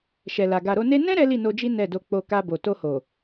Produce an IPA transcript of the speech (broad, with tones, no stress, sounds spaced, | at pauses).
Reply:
ʃ ɛ˨ l a˨ ɡ a˨ ɾ o˧ n e˦ n ɛ̃˦ ɾ ɛ˦ l i˦˨ n o˧ d͡ʒ i˦ n ɛ˦˨ d o˧ k͡p o˧ k a˧ b o˨ t o˧ h o˨